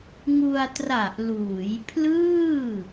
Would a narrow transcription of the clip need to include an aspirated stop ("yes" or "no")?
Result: yes